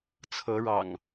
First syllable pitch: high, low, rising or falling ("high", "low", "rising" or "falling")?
rising